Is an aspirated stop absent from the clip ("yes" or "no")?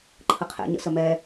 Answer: no